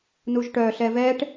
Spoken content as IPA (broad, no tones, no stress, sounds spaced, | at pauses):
n u ʒ ʈ œ ɬ ɛ v ɛ ʈ